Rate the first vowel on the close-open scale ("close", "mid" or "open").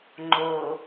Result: mid